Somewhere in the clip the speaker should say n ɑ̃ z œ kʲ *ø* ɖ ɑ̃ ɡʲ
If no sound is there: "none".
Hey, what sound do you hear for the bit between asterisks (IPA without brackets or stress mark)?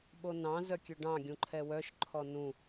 ø